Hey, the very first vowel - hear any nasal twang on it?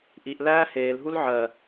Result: no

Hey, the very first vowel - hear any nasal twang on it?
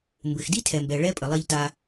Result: no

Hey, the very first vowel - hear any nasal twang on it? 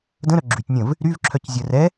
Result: yes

